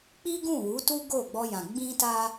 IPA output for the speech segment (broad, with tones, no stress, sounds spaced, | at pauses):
k͡p i˦ ɡ ũ˦˨ w u˨˦ t u˦ ɡ o˦˨ ɡ͡b ɔ˧ j ã˨ ɡ͡b ĩ˧ t a˧